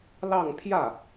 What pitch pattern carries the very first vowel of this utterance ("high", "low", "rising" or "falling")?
falling